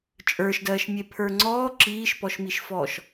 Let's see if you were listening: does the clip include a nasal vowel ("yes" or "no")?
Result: no